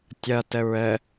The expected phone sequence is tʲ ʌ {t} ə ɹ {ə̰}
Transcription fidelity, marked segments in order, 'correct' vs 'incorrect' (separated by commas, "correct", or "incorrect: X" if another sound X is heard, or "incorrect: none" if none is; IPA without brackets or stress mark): correct, incorrect: ə